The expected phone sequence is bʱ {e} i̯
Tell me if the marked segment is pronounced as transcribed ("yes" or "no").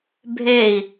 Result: yes